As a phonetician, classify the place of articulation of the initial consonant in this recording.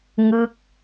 velar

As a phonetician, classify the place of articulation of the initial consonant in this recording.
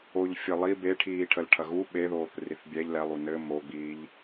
palatal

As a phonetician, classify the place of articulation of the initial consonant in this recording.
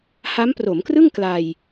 glottal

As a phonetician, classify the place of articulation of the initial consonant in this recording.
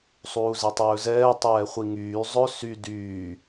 alveolar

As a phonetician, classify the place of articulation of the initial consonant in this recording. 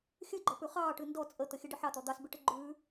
velar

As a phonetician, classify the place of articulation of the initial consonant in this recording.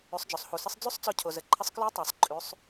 alveolar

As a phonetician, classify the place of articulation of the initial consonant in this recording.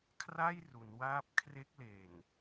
velar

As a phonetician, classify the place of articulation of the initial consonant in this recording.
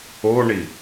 retroflex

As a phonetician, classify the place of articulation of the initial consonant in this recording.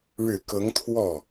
retroflex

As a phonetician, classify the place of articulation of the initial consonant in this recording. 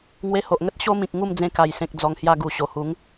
velar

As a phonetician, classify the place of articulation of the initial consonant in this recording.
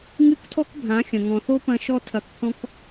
velar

